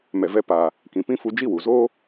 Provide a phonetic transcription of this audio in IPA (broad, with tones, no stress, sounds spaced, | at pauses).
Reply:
m ɛ˨ v ɛ˧ p a˨ | k ĩ˨ p ĩ˦ f u˧ d͡ʒ i˦˨ w u˨ z oː˦